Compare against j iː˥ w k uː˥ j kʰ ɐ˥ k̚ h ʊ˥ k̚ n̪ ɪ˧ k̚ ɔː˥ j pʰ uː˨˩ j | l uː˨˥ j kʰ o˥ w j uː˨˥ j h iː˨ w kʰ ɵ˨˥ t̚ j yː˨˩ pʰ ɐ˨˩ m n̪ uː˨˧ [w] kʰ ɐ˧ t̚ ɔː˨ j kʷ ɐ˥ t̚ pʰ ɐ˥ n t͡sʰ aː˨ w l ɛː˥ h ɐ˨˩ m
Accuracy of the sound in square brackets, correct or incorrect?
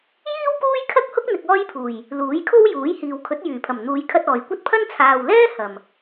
incorrect: j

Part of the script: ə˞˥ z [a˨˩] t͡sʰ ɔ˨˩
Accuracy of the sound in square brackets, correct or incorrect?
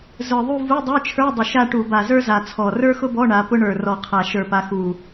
correct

